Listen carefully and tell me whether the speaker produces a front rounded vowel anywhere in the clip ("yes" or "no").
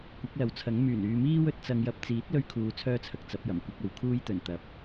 yes